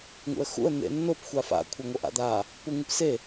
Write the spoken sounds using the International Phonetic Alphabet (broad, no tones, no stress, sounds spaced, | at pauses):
ŋ ṵ ə̯ x ṵ ə̯ n̪ ḛ nː o p xʷ a f a̰ kʷʰ ɐ ŋ o ʔ a̰ d̪ a | p u ŋ ɨ p s e